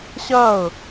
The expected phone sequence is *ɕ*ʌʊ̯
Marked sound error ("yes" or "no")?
no